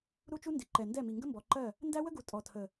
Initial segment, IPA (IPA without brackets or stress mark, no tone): ɾ